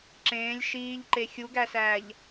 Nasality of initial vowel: nasal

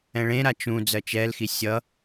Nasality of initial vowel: nasal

